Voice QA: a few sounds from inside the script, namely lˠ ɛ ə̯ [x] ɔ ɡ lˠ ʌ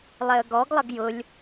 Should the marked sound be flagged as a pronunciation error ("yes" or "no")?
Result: yes